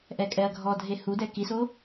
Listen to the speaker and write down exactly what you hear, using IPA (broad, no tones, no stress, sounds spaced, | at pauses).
ʔ ɛ kʼ ɛ ɐ̯ ɡʱ ɔ dʱ e h u d ɛ k i s o